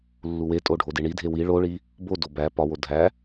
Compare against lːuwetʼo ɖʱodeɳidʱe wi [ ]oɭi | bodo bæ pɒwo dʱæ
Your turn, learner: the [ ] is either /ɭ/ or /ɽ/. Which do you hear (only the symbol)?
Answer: ɭ